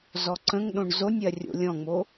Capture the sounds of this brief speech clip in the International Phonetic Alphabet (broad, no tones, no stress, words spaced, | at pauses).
zɔǀə̃ŋɗõɳ zonʲɜ rʲo̰lʲɔ̃ŋ͡mo